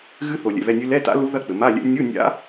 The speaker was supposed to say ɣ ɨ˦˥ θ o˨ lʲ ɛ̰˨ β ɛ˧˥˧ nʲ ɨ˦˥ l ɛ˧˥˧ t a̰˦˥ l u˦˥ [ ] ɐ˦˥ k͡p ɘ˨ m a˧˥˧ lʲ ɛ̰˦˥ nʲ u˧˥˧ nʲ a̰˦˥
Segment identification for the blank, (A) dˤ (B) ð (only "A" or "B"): B